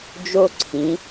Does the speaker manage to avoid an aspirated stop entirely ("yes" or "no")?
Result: no